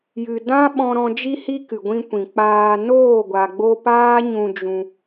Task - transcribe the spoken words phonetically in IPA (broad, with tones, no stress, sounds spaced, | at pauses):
j ɨ˨ d ã˦ ɓ ɔ̃˧ ɾ ɔ̃˧ d͡ʒ i˧ h i˧ k ɨ˨ ɡʷ ĩ˧ kʷ ĩ˨ k͡p aː˧ n oː˦˨ ɡʷ a˨ ɡ͡b o˧ p aː˦ ɲ ũ˧ d͡ʒ ũ˧